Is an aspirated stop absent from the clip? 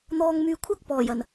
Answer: no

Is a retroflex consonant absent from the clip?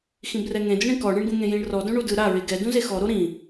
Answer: no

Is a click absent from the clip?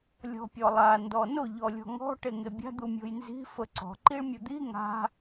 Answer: no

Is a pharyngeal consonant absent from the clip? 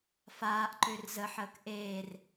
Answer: no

